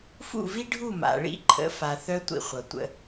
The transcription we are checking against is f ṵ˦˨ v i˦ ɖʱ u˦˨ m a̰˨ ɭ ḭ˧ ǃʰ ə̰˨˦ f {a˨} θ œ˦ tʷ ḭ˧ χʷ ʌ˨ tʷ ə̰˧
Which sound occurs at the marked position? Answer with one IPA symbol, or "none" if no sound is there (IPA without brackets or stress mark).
a˨